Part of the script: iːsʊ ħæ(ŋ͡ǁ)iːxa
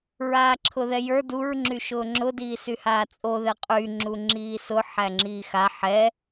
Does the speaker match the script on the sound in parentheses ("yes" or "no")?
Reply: yes